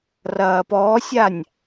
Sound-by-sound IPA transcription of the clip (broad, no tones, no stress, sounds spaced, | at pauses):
r ɐː p ɔː sʲ a nʲ